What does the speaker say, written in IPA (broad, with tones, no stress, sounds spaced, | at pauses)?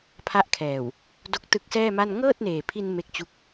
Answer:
pʰ a˦˥ ʔ kʰ ɛː˨˩ w | d o˦˥ k̚ t ɯ˦˥ k̚ s ɛː˥˩ m a˥˩ n ŋ ɤː˥˩ t̚ n eː˨˩ pʰ i˧ n m e˦˥ k̚ t͡ɕ u˦˥ k̚